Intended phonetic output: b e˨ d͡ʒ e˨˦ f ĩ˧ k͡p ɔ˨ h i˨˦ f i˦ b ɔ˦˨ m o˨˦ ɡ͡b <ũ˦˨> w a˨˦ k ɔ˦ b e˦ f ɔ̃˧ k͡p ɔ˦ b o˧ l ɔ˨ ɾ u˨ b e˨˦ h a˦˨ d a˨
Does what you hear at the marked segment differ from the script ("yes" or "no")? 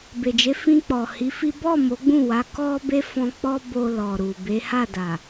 no